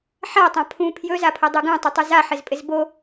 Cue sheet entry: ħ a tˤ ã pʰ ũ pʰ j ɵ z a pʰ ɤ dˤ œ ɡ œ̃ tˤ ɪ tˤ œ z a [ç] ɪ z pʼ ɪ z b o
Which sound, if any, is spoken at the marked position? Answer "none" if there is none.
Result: ħ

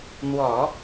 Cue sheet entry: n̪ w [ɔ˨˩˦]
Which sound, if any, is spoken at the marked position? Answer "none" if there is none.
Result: ɔ˨˩˦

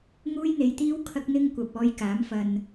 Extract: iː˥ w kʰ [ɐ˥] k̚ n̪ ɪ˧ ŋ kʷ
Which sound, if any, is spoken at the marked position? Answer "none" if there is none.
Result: ɐ˧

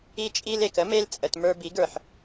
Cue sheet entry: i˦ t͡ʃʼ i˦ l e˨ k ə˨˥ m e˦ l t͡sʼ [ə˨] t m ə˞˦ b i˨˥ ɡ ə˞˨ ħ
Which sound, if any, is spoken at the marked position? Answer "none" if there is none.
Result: ə˨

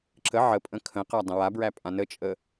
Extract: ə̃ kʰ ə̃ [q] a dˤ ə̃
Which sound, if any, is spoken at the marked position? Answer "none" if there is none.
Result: q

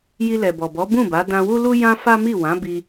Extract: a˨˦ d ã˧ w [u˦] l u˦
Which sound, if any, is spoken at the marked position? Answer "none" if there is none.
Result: u˦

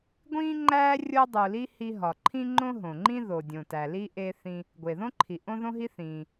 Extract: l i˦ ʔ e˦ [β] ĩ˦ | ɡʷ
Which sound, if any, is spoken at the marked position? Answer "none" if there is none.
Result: θ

